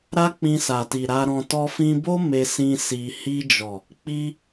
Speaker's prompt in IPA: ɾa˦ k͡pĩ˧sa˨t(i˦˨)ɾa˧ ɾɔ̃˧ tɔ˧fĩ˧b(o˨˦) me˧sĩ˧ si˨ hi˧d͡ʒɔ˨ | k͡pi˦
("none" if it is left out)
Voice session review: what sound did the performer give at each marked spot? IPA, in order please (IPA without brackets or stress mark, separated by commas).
i˨, o˦